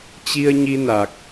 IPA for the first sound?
t͡ɕ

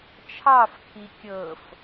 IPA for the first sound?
t͡ʃʰ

